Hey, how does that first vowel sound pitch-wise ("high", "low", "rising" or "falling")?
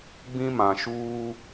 high